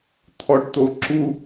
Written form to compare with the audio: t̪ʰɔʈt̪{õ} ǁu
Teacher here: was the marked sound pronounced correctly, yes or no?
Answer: no